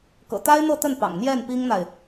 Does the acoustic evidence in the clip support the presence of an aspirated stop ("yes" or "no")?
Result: no